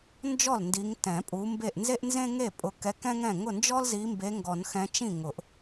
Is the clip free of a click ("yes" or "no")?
yes